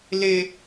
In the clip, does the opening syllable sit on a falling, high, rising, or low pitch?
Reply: high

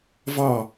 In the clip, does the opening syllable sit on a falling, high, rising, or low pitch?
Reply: falling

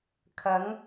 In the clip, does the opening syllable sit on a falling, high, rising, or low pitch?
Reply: rising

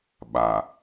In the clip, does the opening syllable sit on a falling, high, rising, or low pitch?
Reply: low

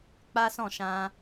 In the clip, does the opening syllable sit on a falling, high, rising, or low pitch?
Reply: high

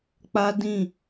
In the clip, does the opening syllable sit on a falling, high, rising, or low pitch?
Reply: high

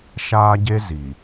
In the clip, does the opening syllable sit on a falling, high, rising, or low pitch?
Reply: high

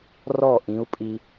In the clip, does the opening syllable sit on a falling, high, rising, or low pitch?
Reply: falling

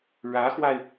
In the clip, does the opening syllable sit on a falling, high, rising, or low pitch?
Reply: rising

